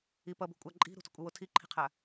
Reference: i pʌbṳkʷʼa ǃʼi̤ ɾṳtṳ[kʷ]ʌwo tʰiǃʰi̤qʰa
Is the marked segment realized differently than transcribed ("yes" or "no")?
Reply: yes